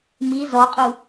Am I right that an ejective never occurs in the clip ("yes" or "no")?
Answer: no